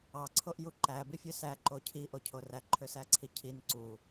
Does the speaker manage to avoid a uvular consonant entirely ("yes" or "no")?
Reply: yes